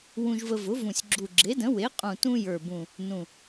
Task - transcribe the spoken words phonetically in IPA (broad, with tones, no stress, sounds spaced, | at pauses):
w ũ˧ ʒ v ə˧ v ʊ˩˥ v ũ˨˩ sʲ ɡ͡ǁ u˨˩ ɡ͡ǁ e˩˥ d ə̃˩˥ w e˩˥ qʼ ũ˨˩ t ũ˧ j ə˞˨˩ b ũ˨˩ | n ũ˨˩